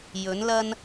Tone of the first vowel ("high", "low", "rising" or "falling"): rising